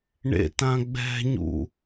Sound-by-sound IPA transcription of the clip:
ɳ ḛ t ã ɡ͡b ɛ̤ ɲ ṵ

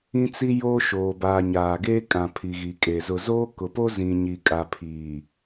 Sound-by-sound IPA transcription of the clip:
ĩ˦ t͡s i˦ j oː˦ ʃ oː˨ b aː˨ ɲ aː˨ ɡ eː˦ kʼ ã˨ pʰ i˨ ɣ i˨ kʼ e˨ z ʊ˨ z oː˦ k ʊ˨ p o˦ z ĩ˨ ɲ i˨ kʼ a˨ pʰ iː˨

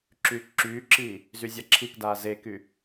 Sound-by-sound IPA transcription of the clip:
ǁ yː k ǁ yː ǁ iː | z y zʲ a ǁʰ i k d aː z e k y

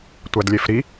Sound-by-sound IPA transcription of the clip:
tʷ æ d lʲ e f ɾ i

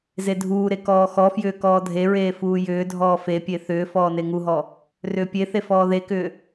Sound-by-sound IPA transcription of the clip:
z e dʱ uː ɾ e k ɔː x ɔ f j ʏː k ɔː dʱ e ɹ eː f uː j ʏː dʱ ɔː f e pʲ e θ ʏː f ɔː n e ŋ u ɦ ɔ | r ʏː pʲ e θ e f ɔː ð e k ʏː

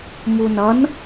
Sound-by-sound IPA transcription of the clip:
m u n ʌ n

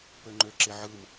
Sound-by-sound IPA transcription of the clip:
p ø ŋ͡ǃ ø ǁ e ʕ ɯ m

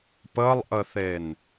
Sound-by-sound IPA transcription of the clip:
p ə lˠ ʔ ə θ e n

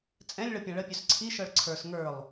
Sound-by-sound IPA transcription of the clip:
t͡sʼ ɛ̃ lʲ ɭ ɤ pʲ ã ɭ ə pʲ œ s ǀʰ i ʃ ɤ ɭ ǀʰ ə˞ s ŋ ə˞ lˠ

